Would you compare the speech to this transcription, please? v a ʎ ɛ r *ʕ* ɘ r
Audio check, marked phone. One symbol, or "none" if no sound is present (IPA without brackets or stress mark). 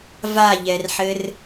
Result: ħ